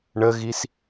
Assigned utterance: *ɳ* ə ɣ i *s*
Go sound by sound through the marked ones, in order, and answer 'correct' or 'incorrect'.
correct, correct

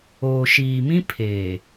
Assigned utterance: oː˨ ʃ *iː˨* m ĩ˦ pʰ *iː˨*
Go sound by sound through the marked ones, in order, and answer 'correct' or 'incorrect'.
correct, incorrect: eː˨

